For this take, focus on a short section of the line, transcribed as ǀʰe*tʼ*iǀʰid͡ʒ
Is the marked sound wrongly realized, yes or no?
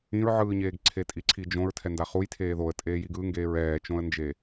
no